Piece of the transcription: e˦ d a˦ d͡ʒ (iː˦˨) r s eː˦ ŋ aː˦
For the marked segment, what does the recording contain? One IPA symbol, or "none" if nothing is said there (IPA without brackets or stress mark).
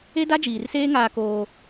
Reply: iː˨